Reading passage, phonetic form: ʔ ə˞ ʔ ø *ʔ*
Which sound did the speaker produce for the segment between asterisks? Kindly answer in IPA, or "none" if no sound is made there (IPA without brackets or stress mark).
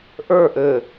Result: none